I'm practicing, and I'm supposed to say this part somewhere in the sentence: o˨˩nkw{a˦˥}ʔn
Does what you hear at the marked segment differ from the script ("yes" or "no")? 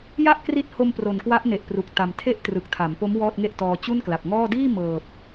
no